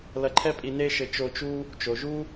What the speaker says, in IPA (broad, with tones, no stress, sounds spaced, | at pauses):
l ɐ˧ ǃʰ ɛ˦ pʼ i˧ n e˦ ʃ ɘ˧ t͡ʃ o˧ t͡ʃ u˦ | t͡ʃ o˨ ʒ u˦